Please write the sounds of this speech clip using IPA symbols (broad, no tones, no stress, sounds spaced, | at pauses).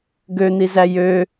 ɡ ø n̪ i z æ j ø